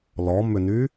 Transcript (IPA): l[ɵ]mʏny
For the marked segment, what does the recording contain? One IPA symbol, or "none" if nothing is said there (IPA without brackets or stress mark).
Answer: ɔ